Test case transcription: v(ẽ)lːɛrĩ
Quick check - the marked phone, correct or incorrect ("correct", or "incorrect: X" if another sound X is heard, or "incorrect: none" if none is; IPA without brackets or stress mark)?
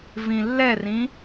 incorrect: ĩ